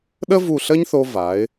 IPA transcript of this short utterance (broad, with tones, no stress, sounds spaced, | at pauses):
ɗ ə˥ v u˧˩ ɬ ə˥ ɲ θ o˧ v a˩˧ ɪ̯